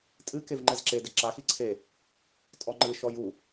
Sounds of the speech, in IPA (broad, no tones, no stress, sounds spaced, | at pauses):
tʼ ɨ k e v ŋ͡ǃ ɛ z ǁ e d ɘ ǁ a x i ǀʰ e | tʼ ɔ ŋ͡ǃ ɨ ʃ ɔ j u